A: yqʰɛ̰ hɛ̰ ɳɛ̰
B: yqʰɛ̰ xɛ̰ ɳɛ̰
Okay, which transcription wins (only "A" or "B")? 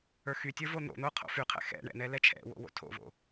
B